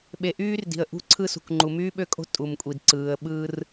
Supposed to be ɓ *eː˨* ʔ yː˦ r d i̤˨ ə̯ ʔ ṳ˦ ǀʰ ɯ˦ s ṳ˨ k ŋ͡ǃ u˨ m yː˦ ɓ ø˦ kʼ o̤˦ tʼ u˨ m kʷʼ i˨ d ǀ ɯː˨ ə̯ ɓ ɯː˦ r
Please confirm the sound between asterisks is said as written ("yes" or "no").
no